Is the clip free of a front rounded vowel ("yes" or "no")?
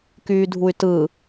no